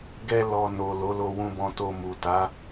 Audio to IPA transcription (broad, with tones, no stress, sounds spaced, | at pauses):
ɡ ɛ˧ l ɔ˨ n o˨ l o˨˦ l o˧ w ũ˧ b ɔ̃˧ t o˧ m u˨ t a˨˦